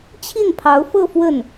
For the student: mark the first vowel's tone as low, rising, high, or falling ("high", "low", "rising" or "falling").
falling